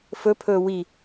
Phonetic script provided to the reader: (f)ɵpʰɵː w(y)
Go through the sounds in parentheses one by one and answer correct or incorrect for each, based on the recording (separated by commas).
correct, incorrect